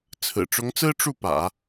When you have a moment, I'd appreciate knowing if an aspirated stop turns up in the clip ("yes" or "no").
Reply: yes